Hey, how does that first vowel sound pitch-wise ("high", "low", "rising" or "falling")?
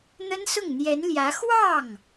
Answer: high